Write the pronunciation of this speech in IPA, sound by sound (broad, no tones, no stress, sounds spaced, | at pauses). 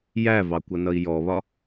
j æ v ɑ kʷ ʌ n ʌ i̯ j ɔ β ɒ